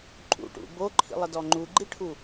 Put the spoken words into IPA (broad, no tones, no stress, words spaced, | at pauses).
ǃʼṵʈṵ boǃʰḭlˠədɔ ŋ͡ǃuɡ͡ǃiʈʰu